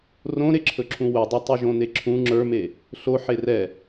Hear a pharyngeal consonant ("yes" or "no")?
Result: yes